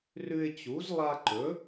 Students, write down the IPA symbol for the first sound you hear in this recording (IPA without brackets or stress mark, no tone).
r